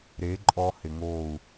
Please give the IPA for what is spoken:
ɾ e˨˦ ǃʼ ɔ˧ h ɪ˨ ŋ oː˦˨ u̯

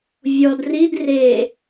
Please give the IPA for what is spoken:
vʲ ɔ d r i d r e

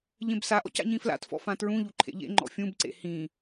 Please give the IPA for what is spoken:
ʎ ẽ b s a ʔ ɔ̰ c a̰ ɲ ĩ f l a̰ t f ɔ̰ f ã t ɹ ũ ʎ u ǃʰ ḛ ʎ ḛ ŋ͡ǃ ɔ̰ fʲ ũ b ǀ ḛ h ĩ

